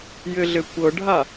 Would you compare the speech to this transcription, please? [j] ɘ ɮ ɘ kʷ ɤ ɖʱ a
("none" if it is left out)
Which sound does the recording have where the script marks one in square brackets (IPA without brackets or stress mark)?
j